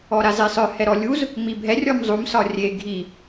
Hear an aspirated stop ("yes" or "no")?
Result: no